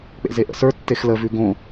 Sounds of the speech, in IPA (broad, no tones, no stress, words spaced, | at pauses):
k͡pḛzeʔə̰sə˞ tːexlə vʉɡõ